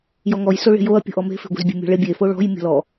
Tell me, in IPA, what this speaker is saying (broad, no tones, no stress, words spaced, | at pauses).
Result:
jɔŋɔjso ɭe̤joɐ̯ pʲo̤ʔɔme̤fe̤ ɡʷe̤zbʲe̤mʲɔ̤ɭe bʲefo ɭɔ̤j mʲɔ̤lɔ